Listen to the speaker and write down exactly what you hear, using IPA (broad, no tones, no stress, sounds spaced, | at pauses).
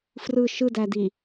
f r ɯ ʃ ɯ d æ d i